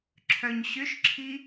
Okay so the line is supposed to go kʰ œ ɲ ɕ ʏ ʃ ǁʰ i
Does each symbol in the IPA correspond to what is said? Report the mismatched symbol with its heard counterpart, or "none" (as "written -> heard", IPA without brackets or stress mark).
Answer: kʰ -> ǁʰ